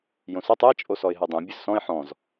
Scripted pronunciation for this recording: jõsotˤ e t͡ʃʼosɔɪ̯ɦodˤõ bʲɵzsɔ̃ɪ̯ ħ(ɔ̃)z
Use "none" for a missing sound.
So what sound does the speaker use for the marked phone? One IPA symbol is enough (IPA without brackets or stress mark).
ɔ̃